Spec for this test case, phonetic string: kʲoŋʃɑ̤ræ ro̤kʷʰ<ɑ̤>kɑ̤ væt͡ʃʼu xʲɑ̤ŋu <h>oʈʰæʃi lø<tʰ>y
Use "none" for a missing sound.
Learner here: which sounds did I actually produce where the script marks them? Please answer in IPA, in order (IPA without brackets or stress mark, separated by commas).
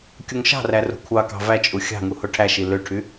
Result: ɑ, h, ʈʰ